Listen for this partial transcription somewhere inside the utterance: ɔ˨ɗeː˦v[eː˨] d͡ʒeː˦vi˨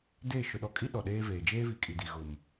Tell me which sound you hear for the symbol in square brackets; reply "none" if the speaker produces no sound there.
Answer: eː˨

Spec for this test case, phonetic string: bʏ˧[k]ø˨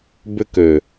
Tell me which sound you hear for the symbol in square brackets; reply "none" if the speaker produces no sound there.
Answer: k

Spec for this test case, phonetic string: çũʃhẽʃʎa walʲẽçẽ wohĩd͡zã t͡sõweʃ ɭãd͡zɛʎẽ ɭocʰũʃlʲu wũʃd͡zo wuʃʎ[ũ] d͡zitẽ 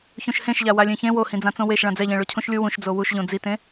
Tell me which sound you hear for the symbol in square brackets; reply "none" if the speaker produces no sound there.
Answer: õ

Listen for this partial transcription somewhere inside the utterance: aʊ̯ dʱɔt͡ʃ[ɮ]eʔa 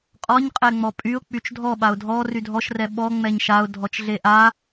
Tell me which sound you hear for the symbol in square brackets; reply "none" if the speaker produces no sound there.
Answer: ɮ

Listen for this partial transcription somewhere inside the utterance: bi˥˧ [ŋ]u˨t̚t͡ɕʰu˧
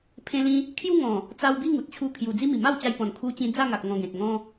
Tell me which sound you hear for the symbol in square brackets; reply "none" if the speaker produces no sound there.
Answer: ŋ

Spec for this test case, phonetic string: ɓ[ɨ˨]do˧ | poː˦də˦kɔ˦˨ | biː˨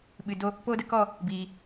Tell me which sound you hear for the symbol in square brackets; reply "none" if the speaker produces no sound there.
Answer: ɨ˨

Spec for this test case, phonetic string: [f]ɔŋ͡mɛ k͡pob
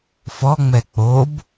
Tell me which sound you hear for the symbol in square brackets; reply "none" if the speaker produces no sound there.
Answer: f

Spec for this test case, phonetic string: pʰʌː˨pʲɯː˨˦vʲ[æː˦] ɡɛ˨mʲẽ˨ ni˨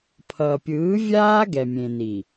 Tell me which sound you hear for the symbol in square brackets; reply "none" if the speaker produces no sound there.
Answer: aː˦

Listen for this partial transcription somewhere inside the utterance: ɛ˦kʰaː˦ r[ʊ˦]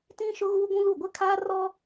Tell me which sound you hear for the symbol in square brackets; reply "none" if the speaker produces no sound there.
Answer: ɔ˦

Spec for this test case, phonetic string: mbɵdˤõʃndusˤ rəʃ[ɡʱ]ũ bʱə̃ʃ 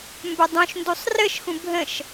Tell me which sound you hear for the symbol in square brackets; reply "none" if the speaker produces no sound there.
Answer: x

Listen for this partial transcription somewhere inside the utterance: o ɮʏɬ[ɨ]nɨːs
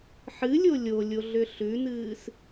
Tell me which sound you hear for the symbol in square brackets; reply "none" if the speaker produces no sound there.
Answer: ʉ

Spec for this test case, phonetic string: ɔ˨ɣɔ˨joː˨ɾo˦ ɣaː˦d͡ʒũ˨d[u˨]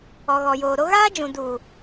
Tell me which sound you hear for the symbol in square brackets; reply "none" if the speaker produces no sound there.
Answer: u˨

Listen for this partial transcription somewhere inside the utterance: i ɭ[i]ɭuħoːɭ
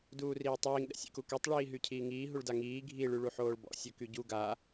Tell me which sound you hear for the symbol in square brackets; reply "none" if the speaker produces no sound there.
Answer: y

